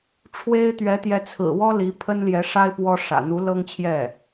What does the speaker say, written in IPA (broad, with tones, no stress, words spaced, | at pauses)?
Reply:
ʈ͡ʂʰwe˥ɪ̯ t̪ɥɛ˧˥t̪jɛ˧˥t͡sʰɹ̩˨˩wɔ˥ li˧˥pʰə˥nljɛ˧˥ʂa˥ɪ̯ pwɔ˥ʂä̰˨˩ n̪u˧˥lɤ˥ŋt͡ɕʰjɛ˥˩